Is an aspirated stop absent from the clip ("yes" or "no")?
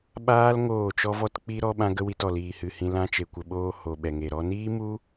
yes